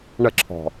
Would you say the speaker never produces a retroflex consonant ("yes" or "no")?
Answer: no